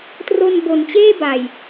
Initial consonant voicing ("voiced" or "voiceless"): voiceless